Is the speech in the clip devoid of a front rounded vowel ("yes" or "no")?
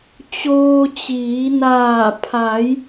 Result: yes